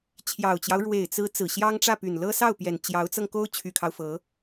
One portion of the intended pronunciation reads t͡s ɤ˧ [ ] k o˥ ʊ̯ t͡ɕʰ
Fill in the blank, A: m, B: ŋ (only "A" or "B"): B